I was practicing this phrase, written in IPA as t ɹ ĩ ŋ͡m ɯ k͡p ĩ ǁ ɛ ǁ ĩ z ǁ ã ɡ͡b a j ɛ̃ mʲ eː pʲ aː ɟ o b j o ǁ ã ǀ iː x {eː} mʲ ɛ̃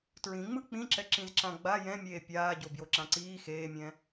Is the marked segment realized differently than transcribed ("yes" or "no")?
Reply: no